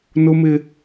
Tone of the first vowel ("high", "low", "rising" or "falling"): high